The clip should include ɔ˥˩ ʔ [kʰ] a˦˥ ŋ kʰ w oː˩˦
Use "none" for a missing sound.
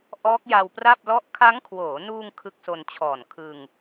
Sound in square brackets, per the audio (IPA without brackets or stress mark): kʰ